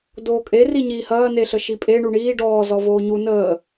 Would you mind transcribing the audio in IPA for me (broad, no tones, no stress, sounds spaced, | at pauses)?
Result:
d oː kʼ e r i ɲ iː h ɐː n e ɬ ə ʃ i pʼ e ɳ u ɳ iː ɖ ɔː z ɔ v oː ɲ u n əː